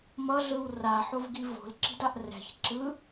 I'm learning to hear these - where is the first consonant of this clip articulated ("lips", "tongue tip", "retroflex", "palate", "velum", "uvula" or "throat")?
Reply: lips